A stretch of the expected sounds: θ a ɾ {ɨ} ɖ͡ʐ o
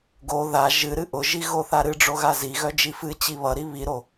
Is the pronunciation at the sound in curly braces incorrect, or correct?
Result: correct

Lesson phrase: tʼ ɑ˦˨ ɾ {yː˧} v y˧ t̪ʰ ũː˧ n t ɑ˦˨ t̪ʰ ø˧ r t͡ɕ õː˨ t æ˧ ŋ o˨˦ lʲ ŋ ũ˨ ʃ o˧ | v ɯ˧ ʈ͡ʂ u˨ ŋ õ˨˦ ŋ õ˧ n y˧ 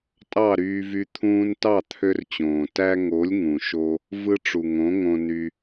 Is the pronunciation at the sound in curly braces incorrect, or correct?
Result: correct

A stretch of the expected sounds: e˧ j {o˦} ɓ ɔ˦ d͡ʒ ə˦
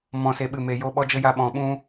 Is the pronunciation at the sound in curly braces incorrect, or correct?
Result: correct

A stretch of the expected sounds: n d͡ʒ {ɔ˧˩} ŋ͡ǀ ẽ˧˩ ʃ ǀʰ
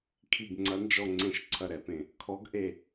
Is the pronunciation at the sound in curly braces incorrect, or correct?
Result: correct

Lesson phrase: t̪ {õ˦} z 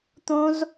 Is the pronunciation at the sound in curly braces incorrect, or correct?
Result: correct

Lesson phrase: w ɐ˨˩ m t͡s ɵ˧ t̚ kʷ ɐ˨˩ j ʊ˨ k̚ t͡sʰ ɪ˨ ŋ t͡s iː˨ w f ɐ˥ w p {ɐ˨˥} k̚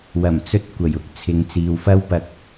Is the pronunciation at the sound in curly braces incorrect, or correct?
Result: incorrect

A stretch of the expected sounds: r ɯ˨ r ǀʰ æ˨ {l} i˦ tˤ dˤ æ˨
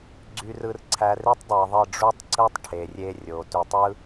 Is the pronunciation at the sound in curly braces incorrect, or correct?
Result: incorrect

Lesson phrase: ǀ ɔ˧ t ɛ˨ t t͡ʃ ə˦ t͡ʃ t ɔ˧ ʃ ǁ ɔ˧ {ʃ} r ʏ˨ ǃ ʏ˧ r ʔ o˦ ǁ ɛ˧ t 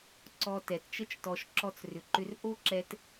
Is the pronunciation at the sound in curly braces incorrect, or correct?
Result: incorrect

